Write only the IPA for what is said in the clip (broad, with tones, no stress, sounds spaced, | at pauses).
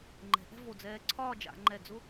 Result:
ŋ͡ǃ ɛ̤˩˧ ʔ ɛ̤˥˧ v o˧˩ d͡z ɛː˧ ǀʰ ɒː˥˧ d͡ʒ a̰˩˧ ŋ͡ǃ ɛ˧˩ d͡z ʊ˥